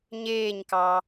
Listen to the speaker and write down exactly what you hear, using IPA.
ɲeːɲkɑ

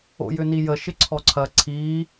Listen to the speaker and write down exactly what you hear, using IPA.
o̰jʏnijə ʃɪǀʰɔǀʰɐ ǀʰi

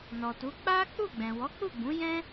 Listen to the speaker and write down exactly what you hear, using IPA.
nɔ˨tu˨˦ k͡pa˦ k͡pu˦˨ɡ͡bɛ̃˨ wɔ˨˦k͡pu˦˨ɡ͡bũ˨˦ jɛ̃˦

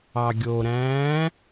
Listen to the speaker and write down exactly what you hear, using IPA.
ɑɡʲoɾæ̃ː

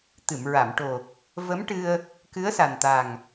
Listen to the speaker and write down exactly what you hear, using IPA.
t̪ɨ˨˩˨mɹa˨˩˨mʈo˨˩ | və˧˥mʈɨ˧ə̯ | kɨ˧˥ə̯sa˨˩nt̪a˨˩ŋ

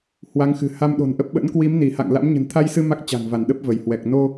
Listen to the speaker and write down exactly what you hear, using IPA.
hwa˨˦ŋxɨ̤˨˩ ha˧mɗo̤˨˩nʔə˦˥p̚ ɓə̰˧˥nkwi˨˦m ni˧˩ha̰˧˨ŋla̰˧˥m ɲə̤˨˩nt̪ʰa˧jsɨ˧ ma˦˥k̚t͡ɕa̤˨˩ŋva˧˩n ɗə˦˥p̚və˧˩jhwɛ˨˩k̚ no˧

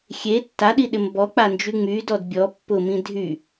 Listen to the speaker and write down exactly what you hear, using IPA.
xʲe tːaɗiɗɪm bɔk͡pand͡ʒy ŋ͡mydɔd bʲɔ pːʊmĩ dʱy

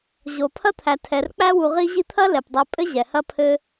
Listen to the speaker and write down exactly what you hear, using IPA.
ʑo˨pʰɐ˥t̪ʰæ˨ tʰɛ˨r k͡pæ˦wu˨ ʁi˦ʑi˦t̪ʰɐ˥ lɛ˩pdˤɛ˨ pʼɘ˥ʑɛ˩hɐ˦ pʰɘ˦

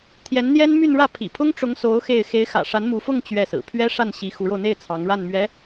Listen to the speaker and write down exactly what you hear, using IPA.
t̪ʰjɛ˧˥nn̪jɛ˥nmy˥˧nɻä˥˩ pʰḭ˨˩pʰʊ˥ŋʈ͡ʂʊ˧˥ŋso˧˥ʊ̯ xe˥˩ɪ̯ xe˧˥ɪ̯xä̰˨˩ʂa˧˥nmu˧˥ fʊ˥˧ŋ t͡ɕɥɛ˥˩sɹ̩˨˩ pʰɥɛ˥ʂa˥˩n ɕi˧˥xu˧˥ɻo˧ʊ̯n̪e˥˩ɪ̯ t͡sʰɑ˧˥ŋɻa˥˩nmɥɛ˧˥

